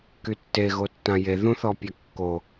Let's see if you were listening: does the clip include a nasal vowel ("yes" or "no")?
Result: yes